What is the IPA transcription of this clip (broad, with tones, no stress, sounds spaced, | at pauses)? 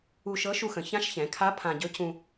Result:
u˧ ʃ ɤ˧˥ ʃ u˧ x ə̃˩˧ ç ã˧˥ ʃ ç ɛ̃˩˧ kʰ a˧˥ pʰ ã˧ ɟ ɵ˧˥ c ũ˧